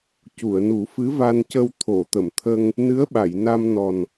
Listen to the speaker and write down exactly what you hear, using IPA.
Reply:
c u˨˩˨ ə̯ n u˨˩˦ f ɨ˧˥ v a˧ n c ə˧ w t̪ʰ o˨˩˨ t̪ ə˨˩˨ m t̪ʰ ə˧ ŋ | n ɨ˧˥ ə̯ ɓ a˨˩˨ j n a˧ m n ɔ˨˩ n

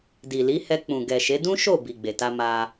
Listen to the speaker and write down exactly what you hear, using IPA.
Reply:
d i˨ l i˨˦ h ɛ˧ k͡p ũ˨ ɡ ɛ˨ ʃ e˨˦ d ũ˦ ʃ o˦˨ b i˨ ɡ͡b e˨ t a˧ m a˧

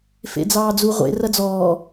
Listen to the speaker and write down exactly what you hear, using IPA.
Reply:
f ḛ d͡z ɑː d͡z u ʁʷ ḛ r ɐ d͡z ɔː

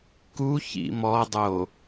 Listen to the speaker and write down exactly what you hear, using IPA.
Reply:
k u ç ḭ m ɔ dˤ o

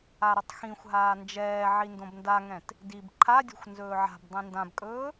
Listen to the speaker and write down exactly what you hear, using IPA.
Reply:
a ɾ ɵ tˤ x ĩ xʷ ɦ aː n d͡ʒ ɛː ʕ i n d õ b n d a ŋ ɛ̃ t | d i b ǃʰ a dʲ o̤ xʷ n z ɵː ʕ a̤ b dˤ ĩ n d ã b kʼ ɵː

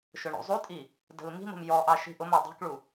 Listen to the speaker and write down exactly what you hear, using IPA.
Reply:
ʃ ʊ ɳ ṵ zˤ u tʼ i | d ə̤ l m i̤ m ə̤ m j ɔ ʔ ɑ ʃ i̤ ʔ ʊ m ɒ dˤ i̤ k ɭ u

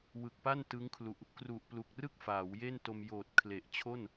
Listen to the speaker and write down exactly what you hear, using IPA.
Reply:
w ɯ˨˩ k̚ p a˥˩ n t ɯ˦˥ ŋ kʰ l u˨˩ ʔ | k r u˨˩ ʔ p l u˨˩ k̚ r ɯ˥˩ k̚ f aː˩˦ w j e˥˩ n t o˧ m j oː˨˩ t̚ kʰ l e˨˩ ʔ t͡ɕʰ o˥˩ n

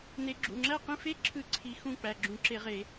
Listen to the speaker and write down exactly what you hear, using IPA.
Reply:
n e˨˩˦ ɡ͡ǁ ṵ˩˧˩ ŋ͡ǁ æ˥˨ q ĩ˥˨ f e˧˥ ǁʰ ɯ˨˩˦ ǀʰ i˧˥ x ũ˥˨ k͡p æ˩˧˩ ɡ͡ǁ ũ˨˩˦ ǁ e˨˩˦ ʁ e˨˩˦

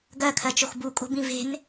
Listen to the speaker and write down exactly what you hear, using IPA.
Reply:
ɡ ɜ kʰ ɜ t͡ʃ o x b u kʼ o̤ b ĩ v e̤ n

